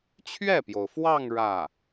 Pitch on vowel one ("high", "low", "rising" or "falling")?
falling